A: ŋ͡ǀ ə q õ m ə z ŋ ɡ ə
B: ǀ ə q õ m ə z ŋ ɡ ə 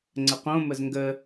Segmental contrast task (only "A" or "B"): A